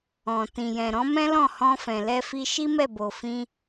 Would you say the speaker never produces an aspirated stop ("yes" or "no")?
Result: yes